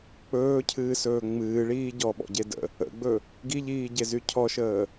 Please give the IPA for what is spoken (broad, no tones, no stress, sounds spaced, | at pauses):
k͡p ɵː cʰ ɨː s ɵː ŋ͡m ɨː ɭ iː ɟ ɔ ɓ ɔ̰ ɟ e d ə̰ | ə̰ ɡ͡b ɵ | ɡ i ʎ iː ɟ e z y cʰ ɔ ʃ əː